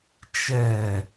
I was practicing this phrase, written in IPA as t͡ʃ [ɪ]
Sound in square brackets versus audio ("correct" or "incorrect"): incorrect